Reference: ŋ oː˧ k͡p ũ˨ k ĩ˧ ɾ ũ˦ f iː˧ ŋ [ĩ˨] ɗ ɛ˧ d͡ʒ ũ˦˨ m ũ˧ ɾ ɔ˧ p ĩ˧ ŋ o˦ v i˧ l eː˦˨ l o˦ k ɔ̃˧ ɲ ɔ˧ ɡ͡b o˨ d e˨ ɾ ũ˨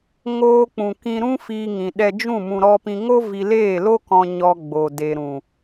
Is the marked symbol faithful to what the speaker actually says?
yes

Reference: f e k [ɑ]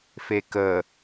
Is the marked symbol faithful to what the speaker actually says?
no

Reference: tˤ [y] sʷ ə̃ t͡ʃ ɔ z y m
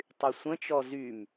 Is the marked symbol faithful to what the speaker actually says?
yes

